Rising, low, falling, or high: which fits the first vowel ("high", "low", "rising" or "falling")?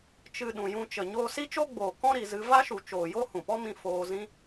low